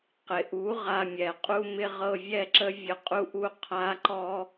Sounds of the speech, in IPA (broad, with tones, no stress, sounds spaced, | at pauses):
q ɪ˩ ʔ u˩˥ ʁ a˧ mʲ ɛ˩ qʼ u˧ m ɪ˧ ʁ ɤ˧ vʲ ɛ˥ ǁ ə˥ vʲ ə˧ qʼ u˥ ʔ u˥ qʰ a˥ ǃ ɔ˥